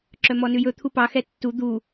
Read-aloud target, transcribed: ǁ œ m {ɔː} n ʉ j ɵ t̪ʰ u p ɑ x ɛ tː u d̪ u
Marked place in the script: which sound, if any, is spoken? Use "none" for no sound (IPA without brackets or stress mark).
ɔ